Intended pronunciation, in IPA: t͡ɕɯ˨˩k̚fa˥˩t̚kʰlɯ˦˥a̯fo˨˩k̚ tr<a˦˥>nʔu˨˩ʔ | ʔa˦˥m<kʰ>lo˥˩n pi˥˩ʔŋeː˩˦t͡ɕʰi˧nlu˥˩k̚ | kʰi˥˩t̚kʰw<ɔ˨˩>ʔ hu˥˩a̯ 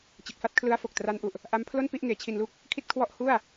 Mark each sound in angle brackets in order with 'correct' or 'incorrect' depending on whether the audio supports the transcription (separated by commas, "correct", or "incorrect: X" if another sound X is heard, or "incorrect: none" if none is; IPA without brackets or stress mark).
correct, incorrect: pʰ, incorrect: ɔ˥˩